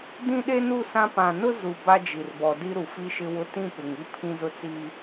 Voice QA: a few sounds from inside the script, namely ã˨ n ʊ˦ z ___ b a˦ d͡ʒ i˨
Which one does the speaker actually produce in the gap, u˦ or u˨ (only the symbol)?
u˨